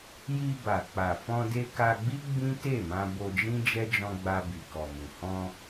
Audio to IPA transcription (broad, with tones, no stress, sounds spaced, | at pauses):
j i˧ b a˨ k͡p a˨ f ɔ̃˧ d e˧ k a˧ ɡ͡b i˦ ɡ͡b ĩ˦ t e˦˨ m ã˧ b o˧ d͡ʒ ĩ˦ d͡ʒ ɛ˦ d͡ʒ ɔ̃˧ ɡ͡b a˧ b i˨ k ɔ˨ m ũ˨ h ɔ̃˧